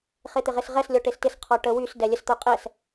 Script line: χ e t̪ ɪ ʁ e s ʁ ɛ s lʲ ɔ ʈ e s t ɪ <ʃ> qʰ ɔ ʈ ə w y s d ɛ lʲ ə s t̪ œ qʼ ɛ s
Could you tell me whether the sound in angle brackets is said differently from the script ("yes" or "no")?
yes